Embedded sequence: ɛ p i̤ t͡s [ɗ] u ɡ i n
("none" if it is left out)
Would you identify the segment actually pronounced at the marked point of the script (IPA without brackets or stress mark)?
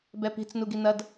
n